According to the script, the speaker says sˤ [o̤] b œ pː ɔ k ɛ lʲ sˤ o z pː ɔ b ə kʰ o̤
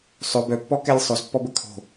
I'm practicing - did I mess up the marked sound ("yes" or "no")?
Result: yes